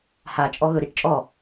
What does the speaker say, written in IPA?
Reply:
h a t͡ʃʼ ɔ ɣ ɵ ɾ i ʈ t͡ʃʼ ɔ

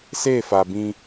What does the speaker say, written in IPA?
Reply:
s e˦˨ f a˨ b ĩ˦

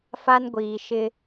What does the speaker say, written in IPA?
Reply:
f a˦ n ɡʷ iː˨ ʃ ɪ˦

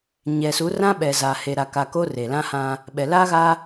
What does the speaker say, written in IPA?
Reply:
ɲ ɛ˨ s u˨˦ r ã˦ ɓ ɛ˨ z a˨ h e˨ ɾ a˨ k a˨ k o˦ r e˨ l ã˦ h ã˦ | ɓ ɛ˨ l aː˦ ɣ a˦

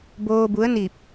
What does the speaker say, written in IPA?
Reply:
b oː˧ b u˧˥ ə̯ n i˧˩ p̚

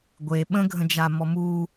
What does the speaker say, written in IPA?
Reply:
ɡʷ e ɓ ə̃ ɡʱ ə̃ d͡ʒ a m ɔ m u

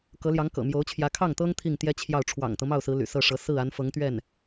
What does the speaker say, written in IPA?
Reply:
k ɤ˧˥ l j ɑ˧˥ ŋ k ɤ̰˨˩ m j o˧˥ ʊ̯ t͡ɕʰ j ä˧˥ kʰ ɑ˥˩ ŋ t̪ ɤ˥ ŋ t̪ʰ i˥˩ ŋ t̪ j ɛ˥ t͡ɕʰ j ɑ˥˩ ʊ̯ ʈ͡ʂʰ w ɑ̰˨˩ ŋ t̪ ɤ˦ m ɑ˥˩ ʊ̯ s ɹ̩˧˥ l y̰˨˩ s ɤ˥˩ ʂ ɤ˧˥ s ɹ̩˥˩ a˧˥ n f ɤ˧˥ ŋ t̪ ɥ ɛ˥˩ n

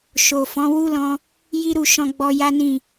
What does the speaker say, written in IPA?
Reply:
ʃ o˨ f ɔ̃˨˦ w u˦ l ɔ̃˧ | j i˦ ɾ u˦˨ ʃ ɔ̃˧ ɡ͡b ɔ˧ j a˦ n ĩ˦˨

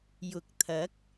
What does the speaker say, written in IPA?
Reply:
j ʊ˨˥ k̚ t̪ʰ ɐ˨˥ k̚

